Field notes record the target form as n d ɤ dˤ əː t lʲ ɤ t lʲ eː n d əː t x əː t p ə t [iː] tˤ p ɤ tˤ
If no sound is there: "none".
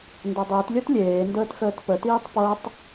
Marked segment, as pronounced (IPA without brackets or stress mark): iː